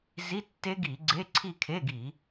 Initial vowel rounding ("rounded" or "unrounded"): unrounded